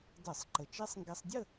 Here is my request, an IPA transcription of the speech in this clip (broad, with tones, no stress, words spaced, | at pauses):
də˧˩˧sˤ ǃə˨˩t͡ʃe˦˥sˤ ŋɡe˧sˤdʲə˥˧